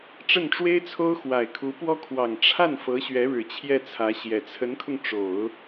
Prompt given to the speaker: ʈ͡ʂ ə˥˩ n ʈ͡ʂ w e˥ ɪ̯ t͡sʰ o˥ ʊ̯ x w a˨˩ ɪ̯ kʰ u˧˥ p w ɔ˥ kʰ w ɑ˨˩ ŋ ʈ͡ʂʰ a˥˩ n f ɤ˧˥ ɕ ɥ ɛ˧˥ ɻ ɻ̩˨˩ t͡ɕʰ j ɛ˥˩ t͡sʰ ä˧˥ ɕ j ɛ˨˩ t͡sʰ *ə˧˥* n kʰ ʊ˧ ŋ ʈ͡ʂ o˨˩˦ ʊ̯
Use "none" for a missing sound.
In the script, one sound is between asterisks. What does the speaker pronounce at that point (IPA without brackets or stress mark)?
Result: ə˧˥